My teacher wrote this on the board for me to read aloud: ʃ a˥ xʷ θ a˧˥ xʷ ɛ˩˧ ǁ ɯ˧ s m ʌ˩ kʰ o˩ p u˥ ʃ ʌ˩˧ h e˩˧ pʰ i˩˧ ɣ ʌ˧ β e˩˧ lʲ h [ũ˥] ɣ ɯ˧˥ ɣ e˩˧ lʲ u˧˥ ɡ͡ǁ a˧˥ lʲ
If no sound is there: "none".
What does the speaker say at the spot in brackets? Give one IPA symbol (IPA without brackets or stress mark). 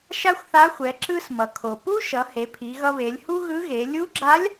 u˥